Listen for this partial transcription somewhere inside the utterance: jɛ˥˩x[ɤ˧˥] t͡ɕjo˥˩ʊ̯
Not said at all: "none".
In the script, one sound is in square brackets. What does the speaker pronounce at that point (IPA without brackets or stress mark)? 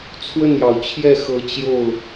ɤ˧˥